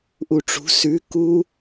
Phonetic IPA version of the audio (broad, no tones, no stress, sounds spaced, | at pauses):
ʔ u ʈ͡ʂ ṳ s ʉ k u